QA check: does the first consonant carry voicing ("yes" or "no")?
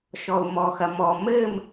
no